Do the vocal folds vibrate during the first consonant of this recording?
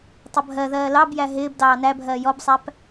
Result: no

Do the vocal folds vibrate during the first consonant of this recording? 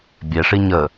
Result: yes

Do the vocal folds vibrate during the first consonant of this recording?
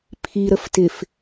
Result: no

